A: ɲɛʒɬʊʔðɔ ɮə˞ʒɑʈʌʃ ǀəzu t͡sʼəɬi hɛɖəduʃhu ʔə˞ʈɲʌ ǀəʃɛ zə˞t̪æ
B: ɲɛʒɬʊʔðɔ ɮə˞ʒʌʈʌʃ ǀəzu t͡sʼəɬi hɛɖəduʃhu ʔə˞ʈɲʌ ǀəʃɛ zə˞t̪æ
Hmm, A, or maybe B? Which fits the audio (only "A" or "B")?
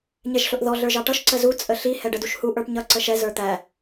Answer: A